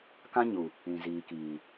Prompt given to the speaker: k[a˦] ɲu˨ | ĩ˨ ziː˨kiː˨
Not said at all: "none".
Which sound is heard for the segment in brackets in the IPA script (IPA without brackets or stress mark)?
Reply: ã˦